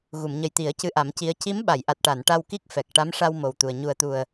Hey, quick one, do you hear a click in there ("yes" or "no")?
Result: no